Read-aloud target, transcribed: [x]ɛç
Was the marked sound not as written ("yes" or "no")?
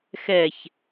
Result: no